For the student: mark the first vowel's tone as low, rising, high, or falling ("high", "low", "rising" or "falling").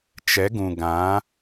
rising